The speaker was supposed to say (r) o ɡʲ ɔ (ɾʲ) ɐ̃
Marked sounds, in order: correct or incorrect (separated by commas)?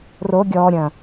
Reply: correct, correct